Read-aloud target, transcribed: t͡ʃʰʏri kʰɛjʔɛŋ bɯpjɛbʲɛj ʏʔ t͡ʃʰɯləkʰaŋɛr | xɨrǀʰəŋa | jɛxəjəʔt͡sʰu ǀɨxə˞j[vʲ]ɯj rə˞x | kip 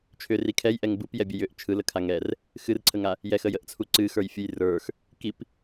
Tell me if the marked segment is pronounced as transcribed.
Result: no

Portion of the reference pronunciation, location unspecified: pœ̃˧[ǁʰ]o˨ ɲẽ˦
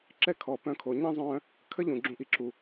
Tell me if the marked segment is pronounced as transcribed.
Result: no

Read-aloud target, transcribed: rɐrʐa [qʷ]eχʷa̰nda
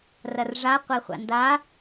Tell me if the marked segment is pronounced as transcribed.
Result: yes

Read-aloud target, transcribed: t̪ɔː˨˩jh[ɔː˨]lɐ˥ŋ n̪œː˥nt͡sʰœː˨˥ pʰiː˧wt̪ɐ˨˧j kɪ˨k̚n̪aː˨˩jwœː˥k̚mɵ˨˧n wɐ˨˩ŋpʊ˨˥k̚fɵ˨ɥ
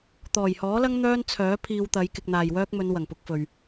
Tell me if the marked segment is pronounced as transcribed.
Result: no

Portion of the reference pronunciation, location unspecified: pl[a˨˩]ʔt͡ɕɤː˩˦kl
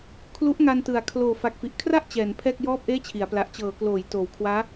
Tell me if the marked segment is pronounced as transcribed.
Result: yes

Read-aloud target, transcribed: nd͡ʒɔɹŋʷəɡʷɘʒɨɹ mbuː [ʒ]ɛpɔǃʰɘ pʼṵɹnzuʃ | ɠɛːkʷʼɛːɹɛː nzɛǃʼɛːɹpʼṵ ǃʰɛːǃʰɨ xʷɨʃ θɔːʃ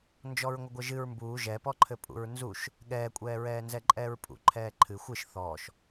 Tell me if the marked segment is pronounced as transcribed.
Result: yes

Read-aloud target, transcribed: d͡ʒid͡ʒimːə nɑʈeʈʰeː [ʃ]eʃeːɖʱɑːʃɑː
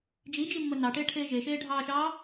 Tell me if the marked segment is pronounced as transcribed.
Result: no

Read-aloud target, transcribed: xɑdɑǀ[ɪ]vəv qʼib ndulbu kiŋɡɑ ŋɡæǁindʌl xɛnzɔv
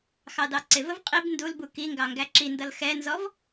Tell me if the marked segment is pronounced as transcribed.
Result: yes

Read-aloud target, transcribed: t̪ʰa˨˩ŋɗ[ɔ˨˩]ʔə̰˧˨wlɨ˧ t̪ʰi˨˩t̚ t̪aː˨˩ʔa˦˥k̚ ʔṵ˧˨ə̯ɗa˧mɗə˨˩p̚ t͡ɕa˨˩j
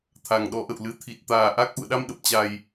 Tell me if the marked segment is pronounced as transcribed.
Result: no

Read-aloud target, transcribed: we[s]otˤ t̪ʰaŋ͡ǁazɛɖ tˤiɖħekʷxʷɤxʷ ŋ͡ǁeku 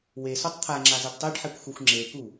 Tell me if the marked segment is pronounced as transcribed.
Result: yes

